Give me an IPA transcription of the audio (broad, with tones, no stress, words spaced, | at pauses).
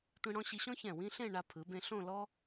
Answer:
tʷĩ˧ɽɔ̃˧ɕi˧ɕɔ̃˥ çɛ̃˧˩wĩ˥ɬẽ˥˧ ɳa˧pʰɯ˩˧bẽ˧ ɬõ˥˧lɔ˥